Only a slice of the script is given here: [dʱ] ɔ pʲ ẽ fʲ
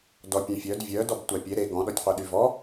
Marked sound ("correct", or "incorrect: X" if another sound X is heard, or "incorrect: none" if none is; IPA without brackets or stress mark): incorrect: d